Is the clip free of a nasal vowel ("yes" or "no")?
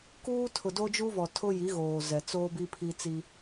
yes